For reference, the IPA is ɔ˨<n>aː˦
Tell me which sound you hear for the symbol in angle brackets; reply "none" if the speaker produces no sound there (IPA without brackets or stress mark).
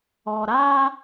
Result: ɾ